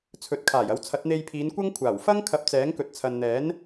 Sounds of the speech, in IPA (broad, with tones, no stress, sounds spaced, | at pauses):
t͡sʰ ɵ˨ t̚ kʰ aː˨˩ j ɐ˨˥ w t͡sʰ ɐ˨˥ t̚ n̪ e˧ j pʰ iː˨˧ n kʷ ɐ˥ ŋ kʷʰ aː˨˩ w f ɐ˥ ŋ kʰ ɐ˧ p̚ t͡s ɛː˨˥ ŋ k ɵ˨ t̚ t͡sʰ ɐ˨ n n̪ ɛː˨˥ n